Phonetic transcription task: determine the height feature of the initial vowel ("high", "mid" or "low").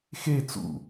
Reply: mid